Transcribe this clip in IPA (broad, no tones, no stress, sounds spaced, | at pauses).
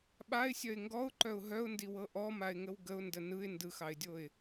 ɓ a ɪ̯ sʲ œ ɪ̯ ŋ ɡ ɔ ʊ̯ ǃ œ ʊ̯ ɦ œ ʊ̯ n d i w ɤ ʔ ɔ m a ɪ̯ ŋ ə w ɡ ə ʊ̯ n d ə n ɯ ɪ̯ n d ɯ x ɑ ɪ̯ dʲ o ɪ̯